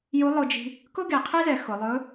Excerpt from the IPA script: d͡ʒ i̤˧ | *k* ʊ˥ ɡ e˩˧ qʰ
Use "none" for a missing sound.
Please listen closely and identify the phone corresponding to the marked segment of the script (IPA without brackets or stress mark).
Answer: k